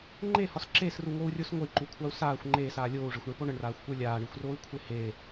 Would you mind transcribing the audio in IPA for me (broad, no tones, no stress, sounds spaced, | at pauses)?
ŋ͡ǃ e h ɒ s ǁ e s r u ŋ o u̯ rʲ o s ŋʷ ə i̯ ǃ u kʷʰ a u̯ s aː xʷ ŋ͡ǃ eː s aː lʲ oː u̯ ʐ e xʷ ɳ e p o ɳ ə ɳ r aː xʷ kʷ ə˞ lʲ aː ɳ i xʷ r oː i̯ kʷʰ e h e